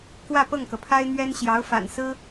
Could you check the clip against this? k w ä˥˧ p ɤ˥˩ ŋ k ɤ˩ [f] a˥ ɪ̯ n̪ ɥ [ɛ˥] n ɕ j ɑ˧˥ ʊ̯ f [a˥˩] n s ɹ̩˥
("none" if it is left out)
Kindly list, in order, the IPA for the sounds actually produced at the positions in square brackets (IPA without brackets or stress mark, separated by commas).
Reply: pʰ, ɛ˥, a̰˨˩